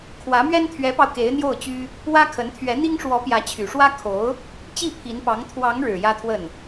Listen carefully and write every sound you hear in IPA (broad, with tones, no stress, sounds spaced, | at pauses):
kʰ w ä˧˥ m ɥ ɛ˥ n t̪ʰ ɥ ɛ˧˥ p ɑ˧ ʊ̯ k e˧˥ ɪ̯ n̪ j o˥˩ ʊ̯ t͡ɕ y˥ | w ä˥ kʰ ə˧˥ n t̪ʰ ɥ ɛ˧˥ n̪ i˥ ŋ ʂ w ɔ˧˥ p j ä˧˥ t͡ɕʰ y˨˩ ʂ w ä˥ kʰ o˧˥ ʊ̯ | t͡ɕ i˥˩ pʰ i˧˥ n p ɑ˧˥ ŋ t̪ʰ w ɑ˧˥ ŋ ɻ ɻ̩˨˩ j ä˥ t̪ʰ w ə˥˩ n